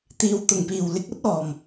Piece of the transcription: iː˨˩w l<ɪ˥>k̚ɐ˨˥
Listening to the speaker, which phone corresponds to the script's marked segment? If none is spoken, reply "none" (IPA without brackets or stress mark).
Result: ɪ˧